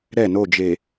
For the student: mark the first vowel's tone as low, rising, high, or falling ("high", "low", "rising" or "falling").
falling